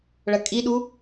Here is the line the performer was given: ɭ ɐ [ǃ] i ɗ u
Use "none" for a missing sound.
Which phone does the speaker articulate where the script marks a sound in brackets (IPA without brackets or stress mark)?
kʼ